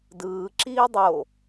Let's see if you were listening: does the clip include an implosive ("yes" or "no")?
no